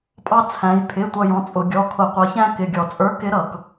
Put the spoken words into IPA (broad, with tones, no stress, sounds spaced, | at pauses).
pʼ ɑ˦ t͡sʰ æ̃˨˦ j pʰ ɪ˩˧˩ tʷ ʌ˦˨ j ɔ̃˩˧˩ t͡sʼ ʊ˧˩˧ ɡʲ ɔ˩˧˩ kʰ ʊ˧˩˧ qʷ ʌ˨˦ ç æ̃˦ k ɪ˩˧˩ ɡʲ ɔ˧˩˧ t͡sʼ ə˞˨˦ k ɪ˨˦ ɾ ʌ˧˩˧ k